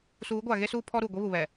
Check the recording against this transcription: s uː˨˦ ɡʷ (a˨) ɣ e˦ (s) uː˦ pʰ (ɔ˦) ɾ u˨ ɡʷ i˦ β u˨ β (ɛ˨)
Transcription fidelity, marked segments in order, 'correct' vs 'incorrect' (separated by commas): correct, correct, correct, correct